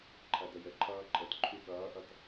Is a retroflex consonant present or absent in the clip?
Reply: absent